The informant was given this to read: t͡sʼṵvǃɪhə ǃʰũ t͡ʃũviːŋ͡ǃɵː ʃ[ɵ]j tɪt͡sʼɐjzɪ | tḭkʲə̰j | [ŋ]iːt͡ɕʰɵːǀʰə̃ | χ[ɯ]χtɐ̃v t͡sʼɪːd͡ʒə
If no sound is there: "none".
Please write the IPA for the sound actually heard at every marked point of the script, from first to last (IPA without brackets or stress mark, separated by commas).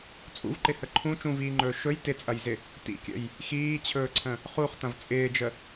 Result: ɵ, x, u